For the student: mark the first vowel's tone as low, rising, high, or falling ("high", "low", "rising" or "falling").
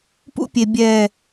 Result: high